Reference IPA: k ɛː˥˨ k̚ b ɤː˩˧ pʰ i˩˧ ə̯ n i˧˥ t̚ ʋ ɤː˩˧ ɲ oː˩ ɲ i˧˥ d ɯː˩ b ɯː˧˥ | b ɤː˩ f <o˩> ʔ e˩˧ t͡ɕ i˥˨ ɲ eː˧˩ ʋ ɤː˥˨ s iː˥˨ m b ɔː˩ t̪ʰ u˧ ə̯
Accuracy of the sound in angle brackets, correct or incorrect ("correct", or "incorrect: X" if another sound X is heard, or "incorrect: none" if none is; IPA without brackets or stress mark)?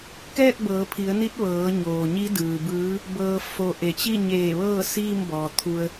correct